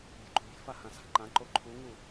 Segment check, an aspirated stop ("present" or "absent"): present